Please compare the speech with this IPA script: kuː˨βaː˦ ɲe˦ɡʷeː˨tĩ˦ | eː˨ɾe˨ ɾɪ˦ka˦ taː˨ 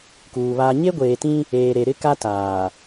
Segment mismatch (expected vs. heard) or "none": none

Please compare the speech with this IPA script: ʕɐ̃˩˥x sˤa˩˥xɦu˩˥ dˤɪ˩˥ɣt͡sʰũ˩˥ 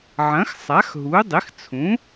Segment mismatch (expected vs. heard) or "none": ɣ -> x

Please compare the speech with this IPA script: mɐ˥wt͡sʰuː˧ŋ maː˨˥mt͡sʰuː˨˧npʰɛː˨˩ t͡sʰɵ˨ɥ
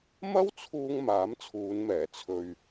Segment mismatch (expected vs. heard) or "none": pʰ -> m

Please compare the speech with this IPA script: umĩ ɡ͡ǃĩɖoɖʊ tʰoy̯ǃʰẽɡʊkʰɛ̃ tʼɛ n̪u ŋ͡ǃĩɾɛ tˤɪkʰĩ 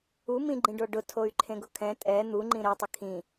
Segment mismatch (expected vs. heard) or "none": none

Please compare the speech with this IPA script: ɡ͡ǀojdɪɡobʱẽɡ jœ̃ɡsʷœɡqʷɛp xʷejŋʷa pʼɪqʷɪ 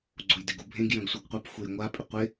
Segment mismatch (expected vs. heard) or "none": none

